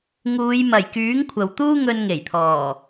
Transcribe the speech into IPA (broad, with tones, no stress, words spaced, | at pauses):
ŋuː˨˧jmɐ˨˩jkyː˨˥ŋ kʷʰɐ˨wt̪uː˥ ŋɵ˧nŋe˨˩jt̪ʰɔː˨˩